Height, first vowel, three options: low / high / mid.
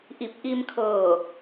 high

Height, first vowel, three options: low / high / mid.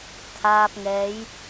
low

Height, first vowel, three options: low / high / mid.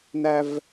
low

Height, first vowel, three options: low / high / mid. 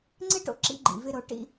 high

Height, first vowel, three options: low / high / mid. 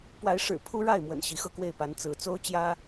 low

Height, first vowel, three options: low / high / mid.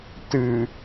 high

